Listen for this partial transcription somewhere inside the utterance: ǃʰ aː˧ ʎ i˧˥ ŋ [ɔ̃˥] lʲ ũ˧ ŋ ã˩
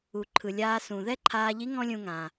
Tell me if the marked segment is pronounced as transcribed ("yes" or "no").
yes